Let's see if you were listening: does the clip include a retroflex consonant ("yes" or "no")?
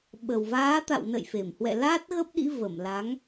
no